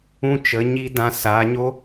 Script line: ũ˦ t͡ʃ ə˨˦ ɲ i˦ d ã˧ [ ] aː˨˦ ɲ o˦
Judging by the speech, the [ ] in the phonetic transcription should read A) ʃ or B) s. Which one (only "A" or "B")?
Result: B